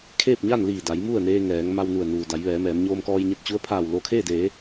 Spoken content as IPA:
kʰ eː˥˨ p̚ ɲ a˥˨ n l iː˧˩ d a˩˧ j m u˥˨ ə̯ n eː˧ ŋ ɛː˩˧ ŋ m a˧ w n u˧˩ ə̯ n uː˩ d a˩˧ j ʋ ɛː˩˧ m ɛː˩˧ m ɲ oː˧ m k ɔː˧ j ɲ e˧ t̚ t͡ɕ u˧˥ ə̯ pʰ aː˧˩ w l o˧˩ kʰ eː˥˨ d eː˩˧

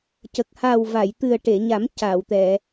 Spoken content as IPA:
c ə˨˩ k̚ h a˨˩ w v a˨˩˨ j t̪ ɨ˨˩ ə̯ ʈ e˨˩˨ ɲ a˨˩˦ m c a˨˩˨ w t̪ ɛ˨˩˨

